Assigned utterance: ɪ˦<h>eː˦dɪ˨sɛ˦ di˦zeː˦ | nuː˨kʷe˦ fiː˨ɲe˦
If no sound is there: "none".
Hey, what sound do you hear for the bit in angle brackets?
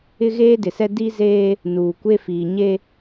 ɣ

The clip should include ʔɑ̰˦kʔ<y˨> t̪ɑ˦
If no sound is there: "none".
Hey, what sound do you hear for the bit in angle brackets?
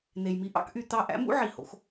y˨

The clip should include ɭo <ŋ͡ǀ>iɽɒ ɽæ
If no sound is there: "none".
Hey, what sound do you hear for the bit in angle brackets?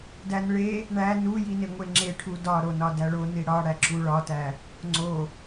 n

